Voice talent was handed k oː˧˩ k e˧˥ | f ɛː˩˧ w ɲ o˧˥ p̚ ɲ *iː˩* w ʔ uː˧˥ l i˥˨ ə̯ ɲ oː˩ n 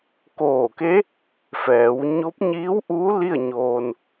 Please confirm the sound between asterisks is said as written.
no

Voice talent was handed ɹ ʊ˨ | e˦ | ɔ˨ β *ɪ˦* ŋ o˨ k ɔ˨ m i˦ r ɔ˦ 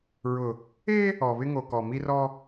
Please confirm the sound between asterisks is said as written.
yes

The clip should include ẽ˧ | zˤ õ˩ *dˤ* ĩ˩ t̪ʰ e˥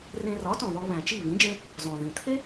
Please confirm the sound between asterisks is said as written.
no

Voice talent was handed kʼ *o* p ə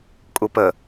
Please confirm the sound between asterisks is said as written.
no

